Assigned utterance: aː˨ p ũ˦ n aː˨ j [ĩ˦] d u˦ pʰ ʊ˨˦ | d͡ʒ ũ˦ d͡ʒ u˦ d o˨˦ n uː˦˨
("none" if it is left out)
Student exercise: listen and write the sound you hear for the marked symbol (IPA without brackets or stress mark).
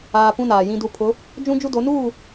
ĩ˦